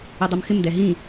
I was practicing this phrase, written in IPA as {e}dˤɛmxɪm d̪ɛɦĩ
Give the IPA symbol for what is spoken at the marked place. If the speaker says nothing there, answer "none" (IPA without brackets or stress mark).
ɛ